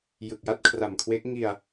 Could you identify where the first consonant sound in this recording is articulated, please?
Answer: palatal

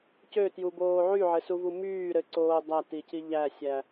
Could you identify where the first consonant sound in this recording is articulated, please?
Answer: palatal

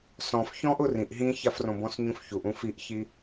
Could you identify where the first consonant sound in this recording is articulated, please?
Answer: alveolar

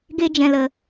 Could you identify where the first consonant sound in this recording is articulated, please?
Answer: velar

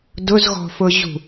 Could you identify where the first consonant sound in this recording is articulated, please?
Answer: alveolar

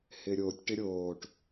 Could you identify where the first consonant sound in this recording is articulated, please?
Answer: glottal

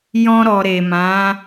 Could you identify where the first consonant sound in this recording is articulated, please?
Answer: palatal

